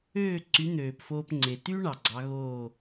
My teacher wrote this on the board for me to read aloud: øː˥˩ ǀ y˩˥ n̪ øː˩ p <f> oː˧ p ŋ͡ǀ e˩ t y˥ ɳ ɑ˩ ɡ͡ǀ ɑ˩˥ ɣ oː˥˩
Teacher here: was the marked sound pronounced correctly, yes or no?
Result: yes